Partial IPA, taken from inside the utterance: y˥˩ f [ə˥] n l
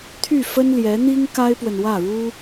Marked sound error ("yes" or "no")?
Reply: no